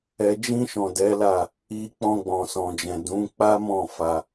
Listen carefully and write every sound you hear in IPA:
ɛ˨ d͡ʒ ĩ˧ ʃ ɔ̃˨ d ɛ˨˦ l a˦˨ | i˨ k͡p ɔ̃˧ ɡ͡b ɔ̃˨ s ɔ̃˨ d͡ʒ ɛ̃˨ d ũ˨˦ k͡p a˦ m ɔ̃˦˨ f a˧

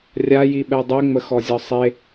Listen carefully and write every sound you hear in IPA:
rʲ a j i ɓ ɛ dˤ ɛ ŋ͡m ə x ɔ zʲ ɒ sˤ e

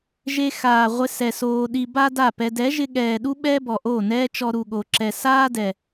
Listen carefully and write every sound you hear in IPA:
ʒ e˧ x aː˨ ʁʷ ɪ˧ s ɛ˨ s oː˧ ɗ i˧ b a˦ d a˦˨ p ɛ˧ d ɛ˨˦ ʒ ɪ˧ ɠ ɛː˨ ɗ u˦ ɓ ɛː˦ b ɔ˨ ʔ oː˦˨ n ɛː˦ t͡ʃ ɔ˧ ɾ u˨ ɠ o˨ ǁ ɛ˨ s aː˦ d ɛ˨

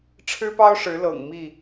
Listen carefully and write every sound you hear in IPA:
ʈ͡ʂʰ ɻ̩˦ p ɑ˦ ʊ̯ ʂ ɻ̩˨˦ l ɤ̰˨˩ ŋ m i˥˨

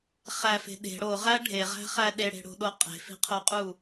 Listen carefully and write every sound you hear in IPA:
χ æ f e̤ ɗ e̤ ɽ o ʁ æ ɖʱ e ʁ æ̤ χ æ ɗ e ɽ e̤ ɽ o̤ ɗ o qʼ e̤ f i̤ qʰ o qʼ u

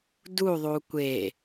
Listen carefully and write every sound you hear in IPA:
d u ðˤ u kʷ e

